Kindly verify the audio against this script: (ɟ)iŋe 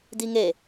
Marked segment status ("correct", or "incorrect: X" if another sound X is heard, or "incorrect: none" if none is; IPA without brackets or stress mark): incorrect: d